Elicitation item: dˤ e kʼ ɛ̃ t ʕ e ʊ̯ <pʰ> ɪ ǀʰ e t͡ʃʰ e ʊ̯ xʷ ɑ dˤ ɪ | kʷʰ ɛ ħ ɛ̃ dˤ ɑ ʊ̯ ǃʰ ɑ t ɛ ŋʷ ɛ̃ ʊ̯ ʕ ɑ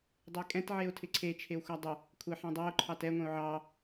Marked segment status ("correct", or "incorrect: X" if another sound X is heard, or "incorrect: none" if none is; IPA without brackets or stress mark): incorrect: tʰ